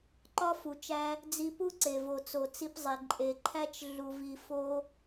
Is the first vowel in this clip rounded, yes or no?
yes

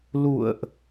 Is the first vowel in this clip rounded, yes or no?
yes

